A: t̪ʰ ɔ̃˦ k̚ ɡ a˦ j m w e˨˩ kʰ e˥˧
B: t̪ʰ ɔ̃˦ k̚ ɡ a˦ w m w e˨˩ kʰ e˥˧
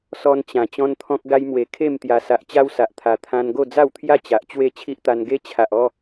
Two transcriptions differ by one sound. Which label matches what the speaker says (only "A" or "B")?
A